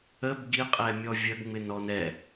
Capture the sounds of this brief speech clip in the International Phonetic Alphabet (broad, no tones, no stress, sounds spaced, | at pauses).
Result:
ə b ɡ i qʼ ɛ mʲ ɔ vʲ ə ɡ ŋ͡m ɪ n ɔ n ɛ